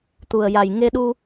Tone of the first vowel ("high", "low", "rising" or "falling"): low